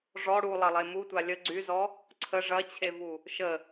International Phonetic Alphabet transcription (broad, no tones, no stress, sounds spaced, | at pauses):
ʐ ɔ ɽ u lˠ ɐ lˠ e m u tʷ a lʲ ə ɡ͡ǀ y z ɔ | ǀʰ ə ʐ ɐ t͡ɕʰ e v u | ʃ ə